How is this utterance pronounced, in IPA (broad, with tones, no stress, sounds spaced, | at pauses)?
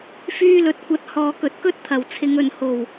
f yː˧ l ɵ˨ t̚ kʷ ɐ˨˥ t̚ h ɔː˨ k ɵ˨˥ t̚ k ɵ˥ t̚ t̪ʰ ɐ˨˩ w t͡sʰ ɪ˨˧ ŋ ɵ˨ n h o˨˩ w